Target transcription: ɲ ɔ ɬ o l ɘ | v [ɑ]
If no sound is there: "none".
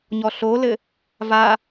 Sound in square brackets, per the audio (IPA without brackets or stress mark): a